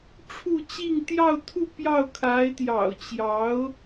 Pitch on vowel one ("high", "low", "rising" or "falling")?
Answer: falling